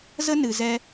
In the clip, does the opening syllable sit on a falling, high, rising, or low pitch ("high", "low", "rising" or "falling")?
high